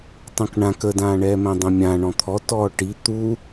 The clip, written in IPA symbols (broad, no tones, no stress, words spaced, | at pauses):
tˤũkɳãk ədãːɳɛːmɛ̃ dˤɛ̃mʲã ɳɔ̃t̪ʰɔ tɔːʈi t̪u